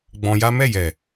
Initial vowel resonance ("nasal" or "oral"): nasal